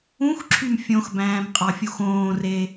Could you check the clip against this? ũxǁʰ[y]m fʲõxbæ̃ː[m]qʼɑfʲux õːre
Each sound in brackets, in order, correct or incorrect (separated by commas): correct, correct